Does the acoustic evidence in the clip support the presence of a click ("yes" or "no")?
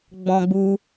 no